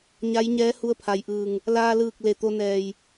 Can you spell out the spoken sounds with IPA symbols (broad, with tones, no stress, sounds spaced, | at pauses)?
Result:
ɲ a˧˥ j ɲ ɛː˧˥ h u˧˥ ə̯ pʰ a˩ j ʔ ɯː˧˩ ŋ | l aː˧ l ɯː˧˩ k̚ l e˧˩ t̪ o˧ n ɛː˧˩ j